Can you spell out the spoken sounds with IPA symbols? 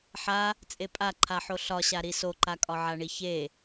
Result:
ħa | t͡sʼepʼaǃʰaħo ɬɒɕa ɾisoǃakʼɒ ʕaɳiçe

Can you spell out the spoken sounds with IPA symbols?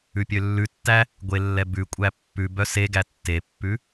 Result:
ʉpʲølːʉtːæ | ɡʷelːɛbʉkʷʼæ pːʉ bœseɡæ tːepːʉ

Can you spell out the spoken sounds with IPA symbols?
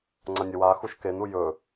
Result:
ŋ͡ǀɐnʲɐwaxuʃ kenu jɵ

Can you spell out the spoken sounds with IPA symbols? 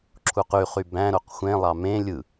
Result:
ǁʰuqyχy bæ̃ɾoq xʷẽlˠɑ mẽ lʲɯ

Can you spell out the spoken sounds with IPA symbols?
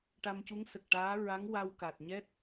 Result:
ʈa˧mcu˧˥ŋ sə˨˩k̚ʈaː˧˥ ɹa˧˥ŋ wa˧wka˨˩t̚ɲɛ˦˥t̚

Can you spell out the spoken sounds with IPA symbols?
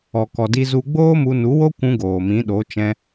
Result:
ɔ˨kɔ˨di˧ zu˧ ɡ͡boː˦mu˧nu˨˦wo˦ kʷũ˧ ɡoː˨mĩ˨˦ɗo˨˦ t͡ʃɛ̃˧

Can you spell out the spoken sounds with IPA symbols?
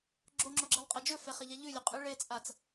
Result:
ɡ͡ǁoŋ͡ǁoɡ͡ǁelˠqʼɐ d͡ʒɵfeχɐʎa ʎʉlʲɵqʼɨ ɭet͡sʼat͡s

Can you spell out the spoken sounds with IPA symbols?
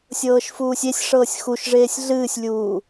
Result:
sʲɤːʃfuːsʲesʲʂɤːsʲ xuʃʐeːsʲ ɮɨːsʲlʲuː

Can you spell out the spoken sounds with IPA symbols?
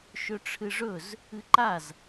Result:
ʃɵʈ͡ʂʰɨʐɵz | ɨǃaz

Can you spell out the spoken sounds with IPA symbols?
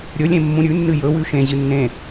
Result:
ɾʲɵlʲẽ mːũɾʲʉnːɨ jɵwʉ ʃẽʑɨ nːẽ

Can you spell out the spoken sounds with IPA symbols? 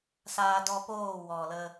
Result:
saː˧dɔ˧poː˦˨ wɔ˨lə˧

